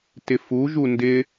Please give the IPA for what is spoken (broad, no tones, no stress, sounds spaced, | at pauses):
t ɪ f u ʒ u n d ɪ